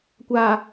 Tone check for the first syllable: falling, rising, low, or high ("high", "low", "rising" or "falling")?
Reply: low